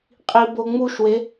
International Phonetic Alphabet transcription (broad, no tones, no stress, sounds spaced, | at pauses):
qʼ i b o ŋ͡m u ʃ w e